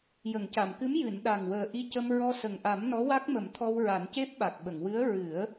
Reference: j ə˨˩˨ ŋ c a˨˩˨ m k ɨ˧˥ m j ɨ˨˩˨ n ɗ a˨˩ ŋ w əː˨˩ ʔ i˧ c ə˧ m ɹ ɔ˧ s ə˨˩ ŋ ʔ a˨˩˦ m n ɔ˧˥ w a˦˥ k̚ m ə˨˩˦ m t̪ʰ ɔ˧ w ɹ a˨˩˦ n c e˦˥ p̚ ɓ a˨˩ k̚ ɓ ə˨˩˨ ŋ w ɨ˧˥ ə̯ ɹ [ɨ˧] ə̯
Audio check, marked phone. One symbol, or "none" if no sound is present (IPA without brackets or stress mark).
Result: ɨ˨˩˦